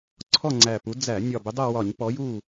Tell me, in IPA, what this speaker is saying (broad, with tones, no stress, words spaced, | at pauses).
ǀʰɔ˦˨ŋ͡ǀæ˨˩pu˨˦ d͡zæ˧˩˧ nʲɒ˨˩ bɪ˨˦dˤɜ˦˨wɒ˧˩˧ɲ pɔ˨˦ju˦˨